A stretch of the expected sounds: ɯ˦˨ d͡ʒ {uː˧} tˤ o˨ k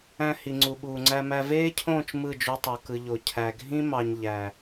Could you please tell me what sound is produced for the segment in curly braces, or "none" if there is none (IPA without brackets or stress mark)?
u˧